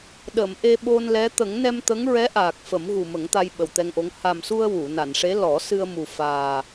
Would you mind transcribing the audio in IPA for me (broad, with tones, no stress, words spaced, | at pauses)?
ɗə˨˩˨m ʔe˧ɓo˧nlɛ˧˥ t̪ə˨˩˦ŋnɛ˧mt̪ə˧˥ŋ ɹɛ˧˥ʔaː˨˩k̚ fə˨˩˦mɣu˨˩mə˨˩˦ŋt̪a˧j ɓə˨˩wt̪ɛ˧ŋʔo˧˥ŋ ha˨˩msu˧ə̯ wu˨˩˨ na˨˩˨nʂe˧˥ lɔ˨˩˦sɨ˧ə̯mu˨˩ faː˨˩